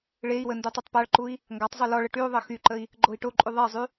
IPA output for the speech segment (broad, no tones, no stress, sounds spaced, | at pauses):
ɭ e i̯ w ə n d u tˤ y tˤ p a ɭ ǃ u i̯ | ŋ ɡ a tˤ zˤ u l ɔ ɭ ə ʈ y u̯ ðˤ ə x y ǃ ə i̯ | ɡ͡ǃ o i̯ ʈ o ǃʼ y ðˤ e zˤ y